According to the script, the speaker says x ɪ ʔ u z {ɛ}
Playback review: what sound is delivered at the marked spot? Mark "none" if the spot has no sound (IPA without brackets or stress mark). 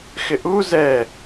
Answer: ɛ